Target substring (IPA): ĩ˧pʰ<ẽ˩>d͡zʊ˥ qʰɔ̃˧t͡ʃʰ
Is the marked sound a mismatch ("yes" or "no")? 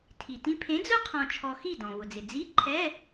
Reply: yes